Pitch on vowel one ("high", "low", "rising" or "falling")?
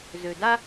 low